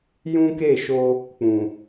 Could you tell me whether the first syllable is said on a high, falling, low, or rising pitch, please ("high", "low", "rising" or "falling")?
high